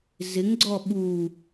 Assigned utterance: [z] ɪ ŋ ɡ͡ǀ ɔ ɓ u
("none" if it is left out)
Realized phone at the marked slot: z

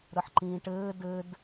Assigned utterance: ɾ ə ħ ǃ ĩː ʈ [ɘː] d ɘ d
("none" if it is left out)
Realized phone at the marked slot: ɘː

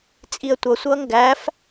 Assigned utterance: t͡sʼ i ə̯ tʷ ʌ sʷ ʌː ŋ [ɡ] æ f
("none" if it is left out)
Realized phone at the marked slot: ɡ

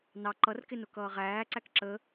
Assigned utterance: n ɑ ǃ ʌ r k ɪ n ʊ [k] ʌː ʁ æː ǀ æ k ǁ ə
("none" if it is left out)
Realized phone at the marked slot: k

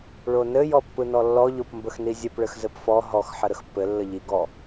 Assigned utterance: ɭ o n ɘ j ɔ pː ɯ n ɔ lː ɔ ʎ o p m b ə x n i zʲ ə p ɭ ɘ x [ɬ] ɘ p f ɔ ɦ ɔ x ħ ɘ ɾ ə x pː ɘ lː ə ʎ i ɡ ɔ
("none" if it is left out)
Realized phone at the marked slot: z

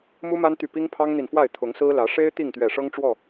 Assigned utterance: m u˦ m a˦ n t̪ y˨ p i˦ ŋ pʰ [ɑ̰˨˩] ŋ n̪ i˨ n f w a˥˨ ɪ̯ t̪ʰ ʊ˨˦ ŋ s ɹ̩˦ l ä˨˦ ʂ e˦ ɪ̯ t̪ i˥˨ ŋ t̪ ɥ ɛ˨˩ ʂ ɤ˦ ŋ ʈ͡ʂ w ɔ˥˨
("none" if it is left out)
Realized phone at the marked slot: ɑ˦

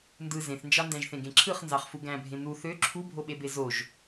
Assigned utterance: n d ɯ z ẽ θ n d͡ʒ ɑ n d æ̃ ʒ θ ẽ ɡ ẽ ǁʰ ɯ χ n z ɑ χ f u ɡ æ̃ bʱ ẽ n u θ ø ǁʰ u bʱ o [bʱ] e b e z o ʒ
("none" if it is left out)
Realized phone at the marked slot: ɓ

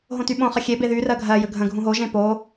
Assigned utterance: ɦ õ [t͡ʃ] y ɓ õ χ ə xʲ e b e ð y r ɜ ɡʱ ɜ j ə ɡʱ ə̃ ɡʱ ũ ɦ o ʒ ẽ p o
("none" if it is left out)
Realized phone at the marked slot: t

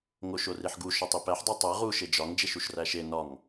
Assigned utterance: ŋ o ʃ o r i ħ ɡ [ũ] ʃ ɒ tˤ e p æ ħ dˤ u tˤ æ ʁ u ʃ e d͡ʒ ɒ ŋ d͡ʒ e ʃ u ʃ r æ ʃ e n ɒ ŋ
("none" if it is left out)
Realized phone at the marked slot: u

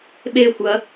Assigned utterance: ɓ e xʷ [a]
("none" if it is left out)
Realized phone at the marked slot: ɐ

